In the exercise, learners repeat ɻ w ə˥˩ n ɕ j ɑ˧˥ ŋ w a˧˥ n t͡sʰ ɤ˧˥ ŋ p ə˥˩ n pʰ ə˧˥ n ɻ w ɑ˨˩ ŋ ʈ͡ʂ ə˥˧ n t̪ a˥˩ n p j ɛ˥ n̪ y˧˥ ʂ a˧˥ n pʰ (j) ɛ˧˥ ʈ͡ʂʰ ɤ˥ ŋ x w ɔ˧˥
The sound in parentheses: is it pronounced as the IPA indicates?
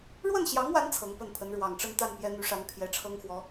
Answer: yes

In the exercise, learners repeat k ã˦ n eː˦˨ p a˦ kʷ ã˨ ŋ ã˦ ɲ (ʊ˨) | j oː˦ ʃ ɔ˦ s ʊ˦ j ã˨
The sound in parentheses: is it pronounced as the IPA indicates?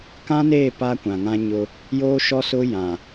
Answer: no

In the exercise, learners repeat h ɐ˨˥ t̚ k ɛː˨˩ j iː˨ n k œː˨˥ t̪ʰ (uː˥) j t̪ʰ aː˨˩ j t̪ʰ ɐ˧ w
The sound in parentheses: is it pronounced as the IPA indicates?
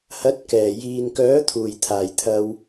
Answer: no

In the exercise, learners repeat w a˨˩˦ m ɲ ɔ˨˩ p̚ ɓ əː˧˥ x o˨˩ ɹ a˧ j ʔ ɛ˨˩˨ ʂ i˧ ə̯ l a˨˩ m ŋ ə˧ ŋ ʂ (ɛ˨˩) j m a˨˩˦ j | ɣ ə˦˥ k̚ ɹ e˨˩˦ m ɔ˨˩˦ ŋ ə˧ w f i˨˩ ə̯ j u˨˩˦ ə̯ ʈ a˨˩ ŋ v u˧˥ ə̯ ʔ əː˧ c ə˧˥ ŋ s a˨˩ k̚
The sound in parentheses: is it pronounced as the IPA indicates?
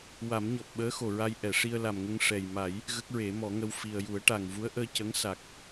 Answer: yes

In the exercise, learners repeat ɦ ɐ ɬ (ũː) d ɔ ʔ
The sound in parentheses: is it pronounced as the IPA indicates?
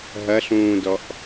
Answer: yes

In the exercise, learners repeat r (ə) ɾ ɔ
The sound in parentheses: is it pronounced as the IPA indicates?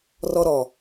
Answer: no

